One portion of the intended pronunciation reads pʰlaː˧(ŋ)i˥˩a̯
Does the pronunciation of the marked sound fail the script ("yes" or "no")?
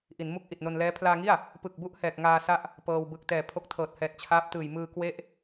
no